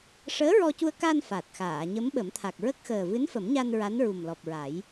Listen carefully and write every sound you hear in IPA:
ʂ əː˧˥ ɹ ɔ˧ c u˧ ə̯ k a˧ n f a˨˩ t̚ x aː˨˩˨ ɲ ə˧˥ m ɓ ə˨˩˦ m t̪ʰ a˨˩ k̚ ɹ ə˦˥ k̚ x əː˨˩ v ɨ˧˥ n f ə˨˩˦ m ɲ a˧ n ɹ a˧˥ n ɹ u˨˩ m l ɔ˨˩ p̚ ɹ a˨˩˦ j

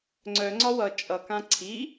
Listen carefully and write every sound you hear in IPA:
ŋ͡ǀ œ ŋ͡ǀ ɒ w ʌ t͡ʃʼ ʌ k ã ǀʰ i

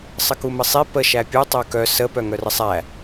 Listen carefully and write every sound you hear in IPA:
sˤ ə k u m ə sˤ i p ə ʃ æ pʲ u tˤ œ k œ s ə p œ ŋ œ r ə sˤ æ

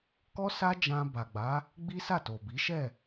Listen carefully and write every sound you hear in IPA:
k ɔ˦ s a˦ d͡ʒ ã˧ b a˨ ɡ͡b a˨˦ | ɡ͡b i˦ s a˦˨ t o˨ b i˨˦ ʃ ɛ˦˨

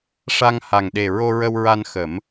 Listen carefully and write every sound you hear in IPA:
ʂ a˧ ŋ h a˨˩ ŋ ɗ e˨˩ ɹ o˧ ɹ ə˧ w ɹ a˧ n x ə˨˩˦ m

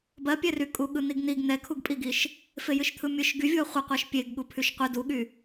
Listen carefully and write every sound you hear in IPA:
b ɜ pʲ ɛ r y kʼ u ɠ ɯ n̪ i ɡ n̪ i ɡ n̪ ɛ kʰ u ɡ pʼ i ɡ i ʃ | f e j ɨ ʃ t̪ʰ ɯ mʲ ɯ ʃ ɡ y vʲ u ɐ̯ χʷ ɨ qʷ ɜ ʃ pʲ e ɡ ɠ u pʰ y ʃ qʷ ɨ d u ɠ y

